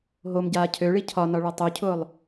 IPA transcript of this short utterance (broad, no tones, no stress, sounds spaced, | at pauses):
ɦ o m ɟ aː cʰ ø ɭ i cʰ ɒ n ɒ ɭ ɒ tˤ ø cʰ ʊː lˠ